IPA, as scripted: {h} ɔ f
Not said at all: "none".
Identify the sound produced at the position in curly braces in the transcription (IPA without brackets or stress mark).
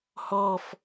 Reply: h